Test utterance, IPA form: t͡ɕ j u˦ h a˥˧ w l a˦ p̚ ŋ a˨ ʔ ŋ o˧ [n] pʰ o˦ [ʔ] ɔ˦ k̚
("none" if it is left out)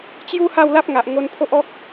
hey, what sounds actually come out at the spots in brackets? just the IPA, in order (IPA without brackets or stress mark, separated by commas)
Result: n, ʔ